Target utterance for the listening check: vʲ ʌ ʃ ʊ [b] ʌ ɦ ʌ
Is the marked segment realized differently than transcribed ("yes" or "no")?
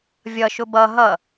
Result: no